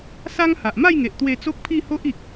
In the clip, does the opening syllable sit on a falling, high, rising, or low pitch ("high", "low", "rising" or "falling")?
high